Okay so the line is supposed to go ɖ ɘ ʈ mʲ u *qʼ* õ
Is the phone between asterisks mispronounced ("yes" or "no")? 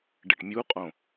no